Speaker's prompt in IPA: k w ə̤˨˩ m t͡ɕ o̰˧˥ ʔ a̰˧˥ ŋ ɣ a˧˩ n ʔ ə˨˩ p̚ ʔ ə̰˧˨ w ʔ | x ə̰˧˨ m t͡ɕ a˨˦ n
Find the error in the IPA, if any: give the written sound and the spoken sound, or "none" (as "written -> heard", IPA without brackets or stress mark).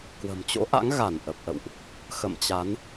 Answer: none